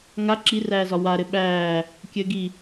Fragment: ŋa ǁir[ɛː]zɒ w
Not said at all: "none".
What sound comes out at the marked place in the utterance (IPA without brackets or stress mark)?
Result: æː